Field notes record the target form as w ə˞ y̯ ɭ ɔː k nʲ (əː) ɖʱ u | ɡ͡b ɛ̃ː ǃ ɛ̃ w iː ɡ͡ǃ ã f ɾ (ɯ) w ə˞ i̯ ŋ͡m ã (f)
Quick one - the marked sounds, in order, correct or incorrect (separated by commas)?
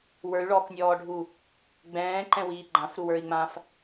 incorrect, incorrect, correct